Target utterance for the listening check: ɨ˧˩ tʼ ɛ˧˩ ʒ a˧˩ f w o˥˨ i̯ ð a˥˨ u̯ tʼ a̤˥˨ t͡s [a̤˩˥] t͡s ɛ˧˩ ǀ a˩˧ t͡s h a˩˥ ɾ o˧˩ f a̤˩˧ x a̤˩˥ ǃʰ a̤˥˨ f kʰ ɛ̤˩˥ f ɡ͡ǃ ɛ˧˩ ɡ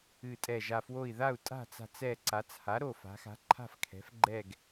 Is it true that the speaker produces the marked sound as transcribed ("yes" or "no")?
no